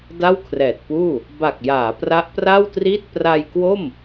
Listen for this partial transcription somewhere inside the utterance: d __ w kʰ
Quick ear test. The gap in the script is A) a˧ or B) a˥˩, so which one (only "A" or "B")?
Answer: B